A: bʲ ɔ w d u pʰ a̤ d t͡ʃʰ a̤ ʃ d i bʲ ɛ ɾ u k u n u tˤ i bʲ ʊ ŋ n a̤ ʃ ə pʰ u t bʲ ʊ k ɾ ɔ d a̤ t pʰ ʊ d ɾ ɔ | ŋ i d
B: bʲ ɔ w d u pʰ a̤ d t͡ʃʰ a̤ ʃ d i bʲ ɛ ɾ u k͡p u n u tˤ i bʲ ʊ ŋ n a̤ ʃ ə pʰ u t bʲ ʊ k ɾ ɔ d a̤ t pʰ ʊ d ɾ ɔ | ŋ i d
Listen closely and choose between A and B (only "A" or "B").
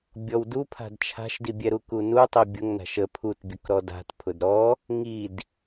A